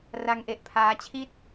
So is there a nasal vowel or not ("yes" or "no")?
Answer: no